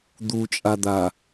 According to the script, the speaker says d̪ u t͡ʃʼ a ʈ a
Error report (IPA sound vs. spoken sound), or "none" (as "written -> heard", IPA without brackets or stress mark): ʈ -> d̪